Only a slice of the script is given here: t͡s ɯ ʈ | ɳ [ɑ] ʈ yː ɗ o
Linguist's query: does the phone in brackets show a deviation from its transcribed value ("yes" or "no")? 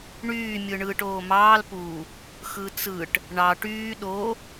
no